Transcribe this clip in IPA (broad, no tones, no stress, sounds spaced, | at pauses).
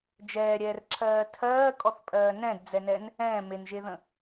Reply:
d͡ʒ ɛː ɾʲ ɛː r ǁʰ ɜː tʰ ɜː kʼ ɔ θ pʼ ɜː n ɛ̃ d d͡z ɛ n ɛ n | ɛ̃ː m e n ʒ e ð ə̃